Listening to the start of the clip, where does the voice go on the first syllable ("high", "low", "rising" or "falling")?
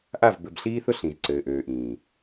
falling